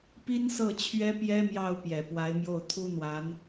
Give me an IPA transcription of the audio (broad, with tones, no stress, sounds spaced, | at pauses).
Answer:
p i˥ n s ɤ˥˩ t͡ɕʰ ɥ ɛ˥ p j ɛ˥ m j ɑ˥˩ ʊ̯ p j ɛ˨˩ p w a˧˥ ɪ̯ m j o˥˩ ʊ̯ t̪ʰ u˥ n̪ w a˧˥ n